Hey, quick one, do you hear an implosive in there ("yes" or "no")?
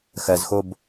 no